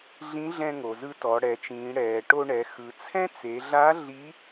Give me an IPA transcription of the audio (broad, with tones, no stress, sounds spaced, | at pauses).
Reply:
ɮ ĩ˧˥ ɮ ɛ̃˧ ŋ o˩ z ɯ˧ t ɔ˩˧ ɽ ɛ˩˧ t͡ʃ ĩː˩˧ ɽ ɛː˩ ʈ o˧ ɳ ɛ˩˧ x ɯ˩˧ t͡sʰ ɛ̃˥ t͡s e˩˧ ɮ a˧˥ ɮ i˧˥